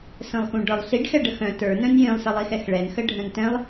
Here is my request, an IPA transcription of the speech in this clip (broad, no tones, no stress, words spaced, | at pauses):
sə̃lˠxũɖə˞lˠɬiɖ xɛɖəxœ̃ tə˞ nœ̃njĩlˠ səlˠixɛxɭɛn xəɖʱœ̃ntɛ̃lˠ